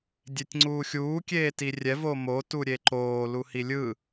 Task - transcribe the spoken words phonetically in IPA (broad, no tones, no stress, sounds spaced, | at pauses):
dʲ e tʲ ŋ͡ǀ uː xʲ uː kʲ eː t i rʲ ɛ v o m o t u ɾʲ e ǃ oː l u h i lʲ ɯ